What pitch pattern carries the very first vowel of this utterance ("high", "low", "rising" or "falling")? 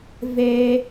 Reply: high